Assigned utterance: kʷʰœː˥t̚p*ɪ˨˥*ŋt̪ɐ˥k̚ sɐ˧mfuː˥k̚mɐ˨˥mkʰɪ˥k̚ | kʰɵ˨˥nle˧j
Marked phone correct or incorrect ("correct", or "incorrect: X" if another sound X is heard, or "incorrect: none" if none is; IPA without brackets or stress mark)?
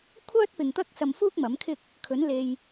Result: incorrect: ɪ˨